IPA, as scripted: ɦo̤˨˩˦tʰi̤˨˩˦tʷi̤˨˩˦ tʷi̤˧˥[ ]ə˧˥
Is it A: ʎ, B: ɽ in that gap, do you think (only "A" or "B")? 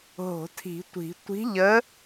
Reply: A